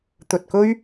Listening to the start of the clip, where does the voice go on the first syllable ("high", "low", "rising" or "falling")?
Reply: low